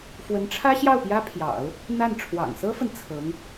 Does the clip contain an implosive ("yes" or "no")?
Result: no